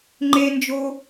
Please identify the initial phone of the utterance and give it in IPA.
ŋ͡ǃ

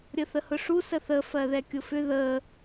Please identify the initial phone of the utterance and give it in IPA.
ɾʲ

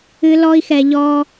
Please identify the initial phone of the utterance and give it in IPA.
ɨ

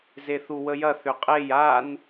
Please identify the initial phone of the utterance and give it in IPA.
z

